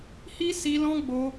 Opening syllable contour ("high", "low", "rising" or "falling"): high